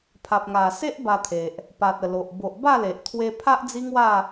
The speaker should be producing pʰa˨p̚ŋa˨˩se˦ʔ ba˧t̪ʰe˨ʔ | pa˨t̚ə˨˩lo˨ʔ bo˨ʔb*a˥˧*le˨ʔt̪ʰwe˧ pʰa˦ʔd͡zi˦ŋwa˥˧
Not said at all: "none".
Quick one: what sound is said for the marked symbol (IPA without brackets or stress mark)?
a˥˧